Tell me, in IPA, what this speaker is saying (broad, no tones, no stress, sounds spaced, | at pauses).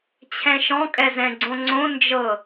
t͡ɕʰ ɛ̃ ʃ ɔ̃ kʼ ɛ z ɛ̃ ɡ͡ǀ õ ŋ͡ǀ õ n d͡ʒ ɤ